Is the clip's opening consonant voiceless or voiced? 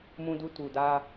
voiced